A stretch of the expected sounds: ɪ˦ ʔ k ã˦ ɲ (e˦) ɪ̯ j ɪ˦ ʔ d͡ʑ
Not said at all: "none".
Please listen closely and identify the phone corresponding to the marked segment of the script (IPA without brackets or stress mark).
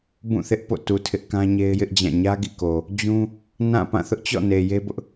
e˦